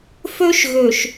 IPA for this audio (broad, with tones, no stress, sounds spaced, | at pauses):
f ø˦ ʃ ɣ ø˨ ʃ